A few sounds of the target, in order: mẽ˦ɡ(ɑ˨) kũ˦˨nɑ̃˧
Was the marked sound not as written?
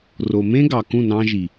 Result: no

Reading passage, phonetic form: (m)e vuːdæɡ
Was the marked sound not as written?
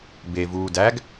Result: yes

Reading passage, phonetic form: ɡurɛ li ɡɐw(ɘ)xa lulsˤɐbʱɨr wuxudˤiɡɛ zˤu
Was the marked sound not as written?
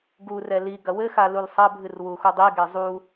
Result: no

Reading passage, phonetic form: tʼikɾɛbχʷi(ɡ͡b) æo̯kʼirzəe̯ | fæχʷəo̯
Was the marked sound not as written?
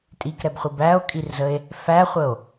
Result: yes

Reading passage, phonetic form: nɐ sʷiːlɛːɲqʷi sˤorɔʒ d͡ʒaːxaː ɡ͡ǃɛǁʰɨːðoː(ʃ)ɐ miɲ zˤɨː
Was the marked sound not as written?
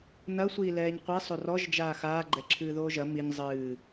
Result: yes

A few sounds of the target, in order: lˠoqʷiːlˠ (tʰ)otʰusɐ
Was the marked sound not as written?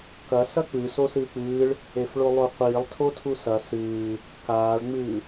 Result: no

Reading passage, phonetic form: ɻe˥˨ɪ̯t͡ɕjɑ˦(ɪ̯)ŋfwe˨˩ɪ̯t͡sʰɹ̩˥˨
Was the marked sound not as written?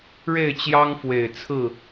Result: yes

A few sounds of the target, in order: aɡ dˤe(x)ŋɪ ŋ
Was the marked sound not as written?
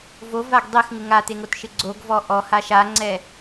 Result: no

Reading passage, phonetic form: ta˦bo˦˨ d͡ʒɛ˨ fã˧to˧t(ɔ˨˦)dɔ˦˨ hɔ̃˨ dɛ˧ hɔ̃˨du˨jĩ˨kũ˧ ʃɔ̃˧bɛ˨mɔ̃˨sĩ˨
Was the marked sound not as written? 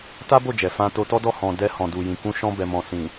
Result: yes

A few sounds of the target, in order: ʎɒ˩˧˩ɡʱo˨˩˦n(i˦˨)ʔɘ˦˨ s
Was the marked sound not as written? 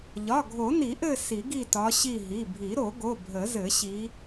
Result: yes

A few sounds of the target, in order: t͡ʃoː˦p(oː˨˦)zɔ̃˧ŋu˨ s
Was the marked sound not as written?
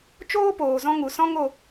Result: yes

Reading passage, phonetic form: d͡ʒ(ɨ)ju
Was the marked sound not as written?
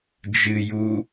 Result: no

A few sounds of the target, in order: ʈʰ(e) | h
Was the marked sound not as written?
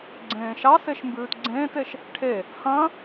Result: no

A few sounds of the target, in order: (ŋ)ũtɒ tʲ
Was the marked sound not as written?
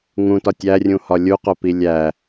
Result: no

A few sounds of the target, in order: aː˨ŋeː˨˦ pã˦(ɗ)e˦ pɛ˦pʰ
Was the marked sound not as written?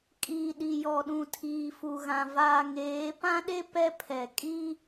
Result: no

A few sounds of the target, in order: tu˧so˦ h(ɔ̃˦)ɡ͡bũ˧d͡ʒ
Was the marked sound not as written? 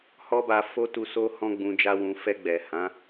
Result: no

